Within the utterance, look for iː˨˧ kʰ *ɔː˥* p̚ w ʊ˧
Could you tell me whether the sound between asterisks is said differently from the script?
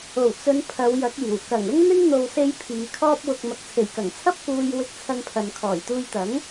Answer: no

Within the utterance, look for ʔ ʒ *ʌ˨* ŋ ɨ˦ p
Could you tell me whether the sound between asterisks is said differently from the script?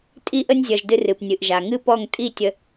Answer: yes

